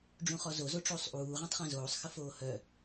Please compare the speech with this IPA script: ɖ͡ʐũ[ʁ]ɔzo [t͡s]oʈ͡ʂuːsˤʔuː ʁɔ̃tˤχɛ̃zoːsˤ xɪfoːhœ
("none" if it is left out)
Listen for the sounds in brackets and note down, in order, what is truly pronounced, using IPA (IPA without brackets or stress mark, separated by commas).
χ, z